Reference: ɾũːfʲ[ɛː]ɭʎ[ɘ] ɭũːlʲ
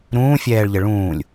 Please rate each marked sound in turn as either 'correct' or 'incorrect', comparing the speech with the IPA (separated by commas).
correct, correct